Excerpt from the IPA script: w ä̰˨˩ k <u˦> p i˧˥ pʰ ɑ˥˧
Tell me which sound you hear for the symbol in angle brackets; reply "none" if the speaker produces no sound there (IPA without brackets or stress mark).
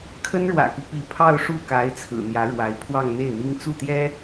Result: u˦